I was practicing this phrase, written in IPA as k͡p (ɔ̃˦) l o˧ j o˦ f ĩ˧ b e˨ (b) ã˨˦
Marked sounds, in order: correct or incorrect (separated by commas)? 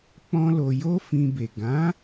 correct, incorrect